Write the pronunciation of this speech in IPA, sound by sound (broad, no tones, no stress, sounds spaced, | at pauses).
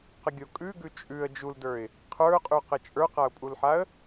q ə ɡʲ o kʼ ʉ ɡ ʉ t͡ʃʼ ʉ ə̯ d͡ʒ u l d ə˞ ɪ̯ | qʰ ə˞ ʊ̯ qʼ ʉ q ə t͡ʃʼ ə˞ q a ʊ̯ pʼ u l ħ a ə̯